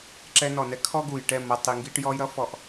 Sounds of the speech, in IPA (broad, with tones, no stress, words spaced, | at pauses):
ǁɛ˧ nɔ˨nɛ˧ kʰɔ˦ ɡu˨jʈɛ˦˨ mʌ˧tˤ i˨ŋɡi˧ʈjɔ˧jɾʌ˦ fɔ˧ʔ